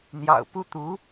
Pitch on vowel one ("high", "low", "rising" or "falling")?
low